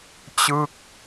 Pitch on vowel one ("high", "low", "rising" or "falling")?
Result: falling